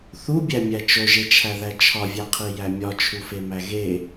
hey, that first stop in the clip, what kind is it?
plain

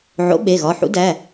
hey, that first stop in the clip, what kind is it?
implosive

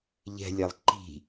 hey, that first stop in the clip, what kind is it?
click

